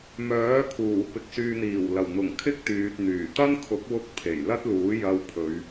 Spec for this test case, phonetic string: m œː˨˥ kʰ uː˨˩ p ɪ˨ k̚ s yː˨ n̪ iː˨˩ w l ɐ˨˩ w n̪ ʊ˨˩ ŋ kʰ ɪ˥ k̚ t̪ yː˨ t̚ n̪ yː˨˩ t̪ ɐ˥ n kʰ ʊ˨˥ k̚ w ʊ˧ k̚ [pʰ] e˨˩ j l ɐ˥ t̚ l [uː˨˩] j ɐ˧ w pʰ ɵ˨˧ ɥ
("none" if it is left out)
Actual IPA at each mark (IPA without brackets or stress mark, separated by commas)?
pʰ, uː˨˥